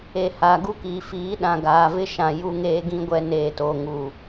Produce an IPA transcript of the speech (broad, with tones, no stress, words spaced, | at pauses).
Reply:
e˨ haː˨ɡu˦kiː˨ fiː˨˦ɗã˨ ɡaː˨vɪ˦ʃã˨ ju˦ŋeː˦ɡĩ˦ɡʷɛ˦ neː˨toː˨ ŋu˨